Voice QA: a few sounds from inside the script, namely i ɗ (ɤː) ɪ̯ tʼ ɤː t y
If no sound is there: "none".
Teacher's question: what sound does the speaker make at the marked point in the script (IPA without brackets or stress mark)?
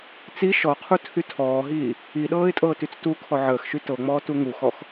ɤː